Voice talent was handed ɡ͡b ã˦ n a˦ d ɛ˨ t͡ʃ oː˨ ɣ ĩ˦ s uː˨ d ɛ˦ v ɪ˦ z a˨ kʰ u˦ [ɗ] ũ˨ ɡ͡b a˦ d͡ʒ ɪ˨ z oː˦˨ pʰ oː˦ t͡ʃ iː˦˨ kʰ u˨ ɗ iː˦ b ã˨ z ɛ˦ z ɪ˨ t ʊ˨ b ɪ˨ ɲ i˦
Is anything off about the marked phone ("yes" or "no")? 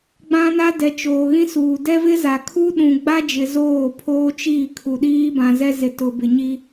no